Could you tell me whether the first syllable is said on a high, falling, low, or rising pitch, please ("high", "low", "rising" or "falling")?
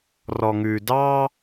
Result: low